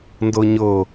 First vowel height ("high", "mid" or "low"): mid